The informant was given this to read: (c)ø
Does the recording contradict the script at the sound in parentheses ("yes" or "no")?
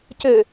no